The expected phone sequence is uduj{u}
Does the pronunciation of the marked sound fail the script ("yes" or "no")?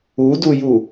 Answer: no